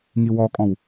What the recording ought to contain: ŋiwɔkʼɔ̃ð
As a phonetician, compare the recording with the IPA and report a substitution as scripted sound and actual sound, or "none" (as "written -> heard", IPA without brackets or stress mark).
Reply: ð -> w